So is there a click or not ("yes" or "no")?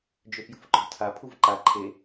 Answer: yes